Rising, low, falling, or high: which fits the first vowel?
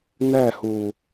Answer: falling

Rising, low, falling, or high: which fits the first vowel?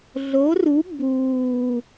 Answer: rising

